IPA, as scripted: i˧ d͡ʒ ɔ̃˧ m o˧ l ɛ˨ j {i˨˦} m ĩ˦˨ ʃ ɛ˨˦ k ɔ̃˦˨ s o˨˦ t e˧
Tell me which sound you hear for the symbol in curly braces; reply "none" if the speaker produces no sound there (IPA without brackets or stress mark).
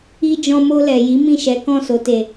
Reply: i˨˦